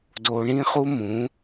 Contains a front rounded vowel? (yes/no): no